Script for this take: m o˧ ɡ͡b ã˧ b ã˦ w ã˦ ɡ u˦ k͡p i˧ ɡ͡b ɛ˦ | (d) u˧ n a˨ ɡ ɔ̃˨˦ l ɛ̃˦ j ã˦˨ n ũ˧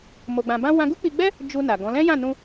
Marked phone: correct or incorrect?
incorrect